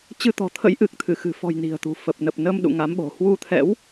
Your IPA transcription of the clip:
t͡ɕ ɨ˧ t̪ ɔ̤˨˩ t̪ʰ ə̰˧˥ j ʔ ɨ˨˩ k̚ t̪ʰ ɨ˧˩ x ɨ̤˨˩ f ɔ̤˨˩ j n i̤˨˩ ə̯ t̪ ṳ˨˩ f ə˨˩ p̚ n ə˨˩ p̚ n ə˧ m ɗ ṵ˧˨ ŋ a˨˦ m ɓ o̤˨˩ h w u˧ t̪ʰ ɛ̰˧˥ w

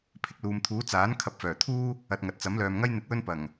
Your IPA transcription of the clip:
pʰ ɪ˧ k̚ l uː˨ m t̪ʰ uː˨˥ t͡s aː˨˥ n kʰ ɐ˨ p̚ f œː˨˩ t̪ʰ uː˥ | ɐ˨ t̚ ŋ ɐ˨ t̚ t͡s ɐ˨˥ m l œː˨ m ŋ ɐ˥ j n̪ ɪ˨˥ k̚ w ɵ˧ n p ɐ˨˩ ŋ

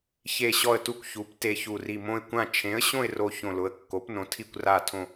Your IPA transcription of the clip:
ç e˧˩ ɕ ɔ˧˩ ə̯ t u˧˩ kʷ ç u˩˧ p t e˧˩ ç u˧˩ r i˧˩ m õ˧˩ ɪ̯ kʷ ã˧˩ t͡ʃʰ ẽ˩˧ ə̯ ɕ õ˧˩ ɪ̯ r o˧˩ ç õ˧˩ l ʊ˩˧ ə̯ kː o˩˧ p n õ˩˧ tʰ i˧˩ kʷ r a˧˩ tʰ õ˧˩

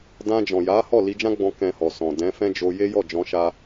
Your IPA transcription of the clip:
d ã˧ d͡ʒ ɔ̃˨ j a˨˦ h ɔ˦˨ l i˧ d͡ʒ ã˦ ɡ͡b ɔ̃˧ k ɛ̃˧ h ɔ˨ s ɔ̃˨ d ɛ̃˨˦ f ɛ̃˦ d͡ʒ o˧ j e˦ j ɔ˦˨ d͡ʒ ɔ̃˧ ʃ a˧

